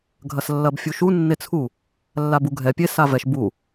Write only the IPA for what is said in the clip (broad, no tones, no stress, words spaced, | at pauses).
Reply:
ɡʱɐslːɐbfʲuʃu nːet͡sʰu | lːabuɡʱɛ pʲe savɛʃ bu